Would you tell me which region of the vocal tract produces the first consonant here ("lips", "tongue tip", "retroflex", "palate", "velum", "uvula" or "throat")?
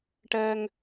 retroflex